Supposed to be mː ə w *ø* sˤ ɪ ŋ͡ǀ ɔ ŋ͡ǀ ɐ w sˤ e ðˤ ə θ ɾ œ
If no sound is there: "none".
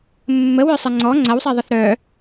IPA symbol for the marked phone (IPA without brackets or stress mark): ø